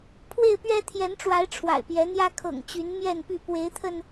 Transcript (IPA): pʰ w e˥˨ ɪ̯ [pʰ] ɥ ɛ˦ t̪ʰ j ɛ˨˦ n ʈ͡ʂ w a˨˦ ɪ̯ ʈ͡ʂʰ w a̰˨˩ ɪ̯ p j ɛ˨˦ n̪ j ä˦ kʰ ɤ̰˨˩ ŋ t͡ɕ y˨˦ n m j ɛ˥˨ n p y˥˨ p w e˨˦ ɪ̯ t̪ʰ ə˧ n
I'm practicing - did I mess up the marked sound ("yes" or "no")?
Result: yes